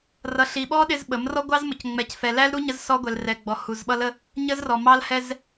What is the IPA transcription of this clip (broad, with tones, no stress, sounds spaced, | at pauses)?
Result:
r ʌ˨ ɬ i˨ ɓ ɔ˦ ɗ ɪ˦ z ɓ ə˨˦ m r ɔ˦ ɡʷ ɑ˦ z m ʊ˨ c ŋ͡m ɛ˨ c f ɛ˨ l æ˦ l ɾ u˦ ɲ ə˦ z s ɔ˦ ɡʷ ɛ˨ l r ɛ˨ ɡ͡b ɔ˨ h u˨ z ɓ ʌ˦ l ə˦ | ɲ ə˦ z r ɔ˨ m ɑ˦ l h ɛ˦ z